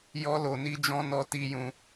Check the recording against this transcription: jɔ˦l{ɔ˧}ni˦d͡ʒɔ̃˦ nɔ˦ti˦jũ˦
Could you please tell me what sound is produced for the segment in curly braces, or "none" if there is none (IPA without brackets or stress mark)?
o˧